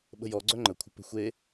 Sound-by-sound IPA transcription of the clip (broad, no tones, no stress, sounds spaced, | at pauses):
ɓ ə̤ j ɔ ɡ͡ǀ œ ŋ͡ǃ ə kʷʰ ə̤ p ə̤ xʷ e